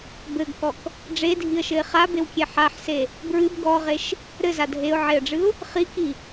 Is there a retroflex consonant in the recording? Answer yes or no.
yes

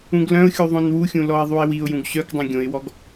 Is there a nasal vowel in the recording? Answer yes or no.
yes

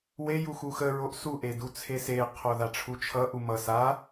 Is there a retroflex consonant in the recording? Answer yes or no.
yes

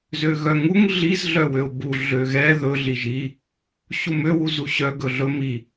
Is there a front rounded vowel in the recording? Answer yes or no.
yes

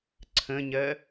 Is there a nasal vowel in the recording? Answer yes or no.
yes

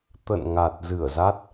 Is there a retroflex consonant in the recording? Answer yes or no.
no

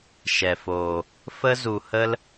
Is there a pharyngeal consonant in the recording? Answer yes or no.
no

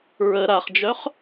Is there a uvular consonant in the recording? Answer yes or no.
yes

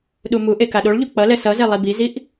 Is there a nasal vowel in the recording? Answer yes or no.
no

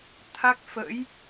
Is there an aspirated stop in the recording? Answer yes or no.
yes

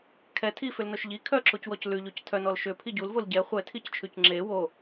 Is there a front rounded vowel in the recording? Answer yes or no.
yes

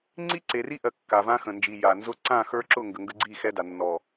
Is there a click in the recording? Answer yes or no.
yes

